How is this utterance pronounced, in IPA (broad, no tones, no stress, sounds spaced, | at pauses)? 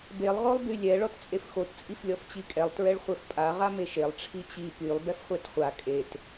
b e lˠ ʁ o lˠ b y lʲ ɛ ɭ ɔ t t͡sʼ e f x o t t͡sʼ i f lʲ ɔ f t͡ɕ i kʼ ɛ lˠ t ɹ ɛ ɭ χʷ ɛ f pʼ a ʁ a m e ʃ e lˠ ʈ͡ʂʰ i t͡ɕ i p y lˠ b ɛ f χʷ ɛ t χʷ a kʼ e t